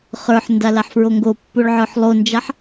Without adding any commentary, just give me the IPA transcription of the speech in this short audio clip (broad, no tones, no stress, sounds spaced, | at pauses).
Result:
χ ə˞ ħ n d a l a ħ f ɹ o ŋ ɡ o pː o ɭ ʕ ə˞ ħ lˠ o n d͡ʒ a ħ